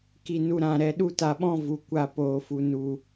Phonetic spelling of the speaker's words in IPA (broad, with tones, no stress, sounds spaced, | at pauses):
k i˧ n u˧ ɾ ã˦˨ ɾ ɛ˦ ɗ u˦ t a˧ ɓ ɔ̃˦ v u˨ kʷ a˦˨ p oː˨ f u˨ n u˨